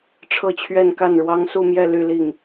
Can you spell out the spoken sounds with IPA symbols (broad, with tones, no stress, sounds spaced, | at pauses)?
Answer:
ʈ͡ʂʰ ɤ˥˧ t͡ɕʰ ɥ ɛ˥˧ n k a˥˩ n ɻ w ɑ˥ ŋ s u˥˧ m j ɛ˥˧ l y˥˧ l i˥˩ ŋ